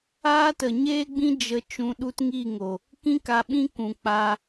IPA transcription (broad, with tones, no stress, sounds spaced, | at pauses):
aː˦ t ə˨ ɲ eː˦ ɡ͡b ĩ˦ d͡ʒ ə˧ t͡ʃ ũ˧ ɗ u˦ t ŋ i˦˨ ŋ o˨ | k ĩ˦ k a˧ ɓ ĩ˦ k ũ˨ k͡p a˧